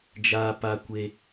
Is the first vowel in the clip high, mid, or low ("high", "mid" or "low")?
low